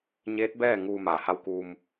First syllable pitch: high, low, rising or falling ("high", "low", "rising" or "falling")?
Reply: rising